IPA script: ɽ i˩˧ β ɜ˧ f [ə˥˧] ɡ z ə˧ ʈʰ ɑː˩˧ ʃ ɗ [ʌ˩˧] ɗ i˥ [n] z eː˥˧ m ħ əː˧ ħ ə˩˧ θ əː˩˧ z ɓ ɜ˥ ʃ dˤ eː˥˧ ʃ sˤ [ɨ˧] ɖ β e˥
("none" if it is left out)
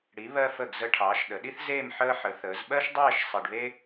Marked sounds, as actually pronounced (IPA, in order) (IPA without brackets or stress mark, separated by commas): ə˧˩, ə˩˧, θ, e˧